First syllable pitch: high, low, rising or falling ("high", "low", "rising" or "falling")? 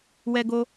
high